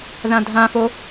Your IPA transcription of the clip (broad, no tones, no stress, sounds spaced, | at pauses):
ð ã dʱ ã f o